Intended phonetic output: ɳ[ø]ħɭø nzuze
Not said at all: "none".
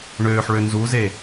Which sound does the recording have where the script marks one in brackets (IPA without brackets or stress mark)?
øː